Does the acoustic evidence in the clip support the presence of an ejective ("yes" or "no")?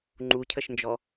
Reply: no